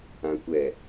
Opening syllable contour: low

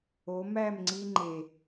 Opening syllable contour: rising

